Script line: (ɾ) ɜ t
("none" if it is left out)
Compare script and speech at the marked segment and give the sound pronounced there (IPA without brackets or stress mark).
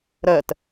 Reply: ɾ